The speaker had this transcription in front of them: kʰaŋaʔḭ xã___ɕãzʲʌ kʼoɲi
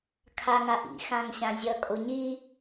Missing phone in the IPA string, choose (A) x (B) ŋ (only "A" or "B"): B